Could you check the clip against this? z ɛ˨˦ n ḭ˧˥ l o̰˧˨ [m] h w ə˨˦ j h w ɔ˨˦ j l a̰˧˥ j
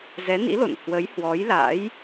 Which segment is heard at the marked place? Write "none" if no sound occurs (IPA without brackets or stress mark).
n